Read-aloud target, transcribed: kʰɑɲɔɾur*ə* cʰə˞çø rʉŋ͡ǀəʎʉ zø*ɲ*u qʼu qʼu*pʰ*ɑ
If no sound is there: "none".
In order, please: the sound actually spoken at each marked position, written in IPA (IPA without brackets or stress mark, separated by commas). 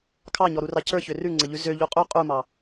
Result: ɑ, ʎ, m